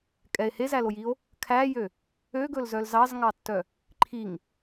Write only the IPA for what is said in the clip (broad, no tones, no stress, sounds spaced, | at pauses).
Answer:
kʼ ɛ e̯ h e z æ l o j i o̯ | kʰ æ j ø | ø ɡ ɵ l z œ l z ɑ z ŋ ɑ tː œ | ǃʰ i ŋ